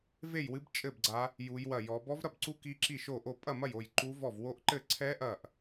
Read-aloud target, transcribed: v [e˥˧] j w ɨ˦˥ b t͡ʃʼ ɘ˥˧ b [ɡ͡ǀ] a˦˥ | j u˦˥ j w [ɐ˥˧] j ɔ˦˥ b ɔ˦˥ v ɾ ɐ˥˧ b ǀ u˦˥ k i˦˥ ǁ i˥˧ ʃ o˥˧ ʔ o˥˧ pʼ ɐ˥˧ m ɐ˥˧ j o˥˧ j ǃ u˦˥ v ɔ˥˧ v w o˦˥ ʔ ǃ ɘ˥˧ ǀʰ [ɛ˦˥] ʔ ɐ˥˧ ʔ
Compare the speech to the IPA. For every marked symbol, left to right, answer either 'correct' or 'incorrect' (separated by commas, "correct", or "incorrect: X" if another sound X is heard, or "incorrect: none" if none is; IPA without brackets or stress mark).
correct, correct, correct, correct